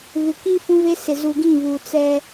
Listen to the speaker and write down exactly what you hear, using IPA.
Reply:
β ɪ˨ k i˦ f ũ˦ β e˦ s ɪ˨ z u˨ ɡ ĩ˦˨ β uː˨ t͡s ɛ˦

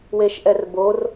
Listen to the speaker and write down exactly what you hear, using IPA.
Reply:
w e ʃ ʔ ɛ r b o r

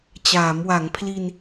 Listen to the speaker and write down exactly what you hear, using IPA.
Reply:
t͡ɕ aː˩˦ m w a˩˦ ŋ pʰ l i˧ n

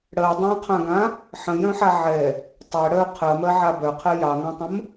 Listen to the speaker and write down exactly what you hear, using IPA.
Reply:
ɽ ɜ dˤ ɑ̃ qʰ ã ɡ ã | ħ ə̃ j œ̃ ħ a ʕ ɛ | tˤ ɛ ɽ œ qʰ ɜ m ɜ ʕ a b œ qʰ ɛ j ɑ ŋ ã tˤ ə̃ m

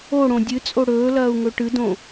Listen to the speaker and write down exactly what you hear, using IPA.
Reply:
o ɽ õ dʲ ɨ t͡sʼ o ɽ ɵː l ɐː u̯ ŋ ɵ ʈ ɨ d õ

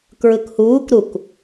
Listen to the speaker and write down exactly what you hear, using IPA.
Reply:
k ɹ ɯ k h uː k ɾ u k

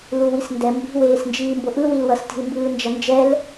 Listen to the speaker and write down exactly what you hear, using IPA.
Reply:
l u w i s n d ɛ m b i̤ w eː s n d͡ʒ iː m b o ʔ ɯ w i l w ʌ s t i̤ l m b ɯː n d͡ʒ ʌ n d͡ʒ ɛ l

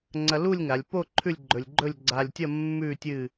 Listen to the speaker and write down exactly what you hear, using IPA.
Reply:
ŋ͡ǀ ɐ˧ l u˥˧ lʲ ŋ a˩˧ lʲ p o˥˧ ǃʰ ʉ˥˧ lʲ ɡ͡ǃ ɵ˧ lʲ ɡ͡ǃ ɵ˥˧ lʲ ɡ͡ǀ a˧ lʲ tʲ ɐ˥˧ mː ʉ˥˧ tʲ ɨ˥˧

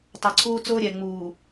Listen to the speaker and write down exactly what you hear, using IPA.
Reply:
tˤ ɑ˨ ǀʰ uː˦ t͡s ʊː˦ ɾʲ ɛ˨ ŋ͡m uː˨

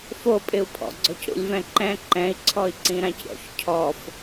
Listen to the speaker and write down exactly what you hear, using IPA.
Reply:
f o pʼ ɪ u̯ pʰ ɔ̰ ɡ͡ǀ ɔ c ɾ ṵ lʲ v ɛ̃ ǃ ɛ̃ ǃ ɛ̃ i̯ ǀʰ ɔ i̯ ǀ ĩ ɾ ã c ɾʲ ɔ̰ ç cʰ ɔ f

